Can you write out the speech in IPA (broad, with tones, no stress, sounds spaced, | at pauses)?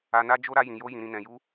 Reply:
a˧ n a˦ d͡ʒ o˦ ɾ a˦ j ĩ˧ j o˦ j ĩ˧ ɾ ĩ˧ n ɛ̃˧ j u˦